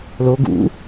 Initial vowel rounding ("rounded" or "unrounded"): rounded